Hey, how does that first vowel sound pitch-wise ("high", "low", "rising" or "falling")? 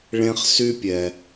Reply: high